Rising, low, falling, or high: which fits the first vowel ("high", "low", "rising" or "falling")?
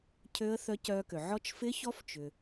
rising